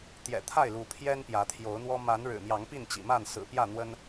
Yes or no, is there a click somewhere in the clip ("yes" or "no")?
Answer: no